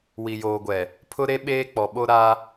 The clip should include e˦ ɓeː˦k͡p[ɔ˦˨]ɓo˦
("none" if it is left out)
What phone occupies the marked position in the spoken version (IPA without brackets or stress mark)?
ɔ˨